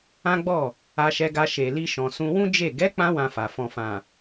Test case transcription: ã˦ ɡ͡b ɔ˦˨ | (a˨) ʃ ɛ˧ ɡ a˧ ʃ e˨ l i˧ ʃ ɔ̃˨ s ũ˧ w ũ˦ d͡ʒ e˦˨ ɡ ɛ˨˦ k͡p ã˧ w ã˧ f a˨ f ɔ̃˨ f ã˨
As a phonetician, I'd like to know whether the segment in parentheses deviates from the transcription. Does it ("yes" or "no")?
yes